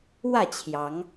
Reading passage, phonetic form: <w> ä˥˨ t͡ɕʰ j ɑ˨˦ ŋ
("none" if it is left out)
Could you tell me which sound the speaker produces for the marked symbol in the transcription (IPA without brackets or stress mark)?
w